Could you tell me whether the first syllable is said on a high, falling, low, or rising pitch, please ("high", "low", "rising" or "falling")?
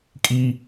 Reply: high